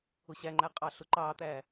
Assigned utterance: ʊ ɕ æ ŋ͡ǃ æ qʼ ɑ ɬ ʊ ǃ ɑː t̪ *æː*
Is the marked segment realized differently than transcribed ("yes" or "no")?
no